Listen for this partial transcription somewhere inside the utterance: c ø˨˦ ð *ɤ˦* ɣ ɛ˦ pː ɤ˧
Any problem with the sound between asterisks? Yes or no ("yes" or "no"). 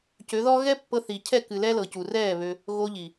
yes